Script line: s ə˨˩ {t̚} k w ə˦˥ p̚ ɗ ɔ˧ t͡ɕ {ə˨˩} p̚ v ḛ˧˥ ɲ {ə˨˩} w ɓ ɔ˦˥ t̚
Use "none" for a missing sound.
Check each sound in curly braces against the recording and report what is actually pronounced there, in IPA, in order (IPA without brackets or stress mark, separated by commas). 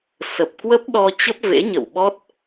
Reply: p̚, ə˦˥, ə̰˧˨